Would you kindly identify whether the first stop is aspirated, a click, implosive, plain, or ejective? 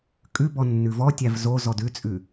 ejective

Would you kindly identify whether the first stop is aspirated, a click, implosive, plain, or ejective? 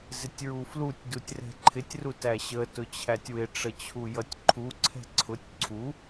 plain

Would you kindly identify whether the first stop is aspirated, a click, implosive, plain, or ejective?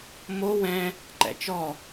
click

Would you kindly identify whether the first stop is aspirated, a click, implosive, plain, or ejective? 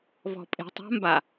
ejective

